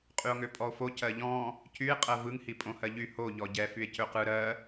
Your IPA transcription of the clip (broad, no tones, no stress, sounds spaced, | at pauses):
qʼ y o̯ ŋ ø pʼ ɔ o̯ f o c ɜ ʎ ɔ̃ | c y e̯ qʼ ɜ v ɯ ŋ h i pʼ õ h ɜ ʎ y h o ʎ ɔ ɟ ɛ f y e̯ c ø q ɯ ɾ ɜ